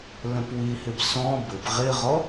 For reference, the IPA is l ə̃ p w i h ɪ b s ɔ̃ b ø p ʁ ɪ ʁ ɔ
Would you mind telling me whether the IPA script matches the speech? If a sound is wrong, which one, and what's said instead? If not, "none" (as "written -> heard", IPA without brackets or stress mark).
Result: ø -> ɘ